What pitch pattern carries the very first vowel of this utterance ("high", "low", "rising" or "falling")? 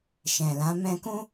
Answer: low